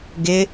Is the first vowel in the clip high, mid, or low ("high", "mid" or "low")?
high